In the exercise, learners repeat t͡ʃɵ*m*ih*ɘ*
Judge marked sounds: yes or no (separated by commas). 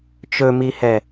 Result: yes, no